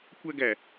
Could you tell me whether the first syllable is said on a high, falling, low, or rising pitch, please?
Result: high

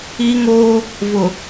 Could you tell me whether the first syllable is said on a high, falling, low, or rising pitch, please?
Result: high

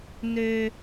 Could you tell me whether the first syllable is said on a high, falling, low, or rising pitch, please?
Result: high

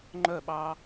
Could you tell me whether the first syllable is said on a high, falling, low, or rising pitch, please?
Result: falling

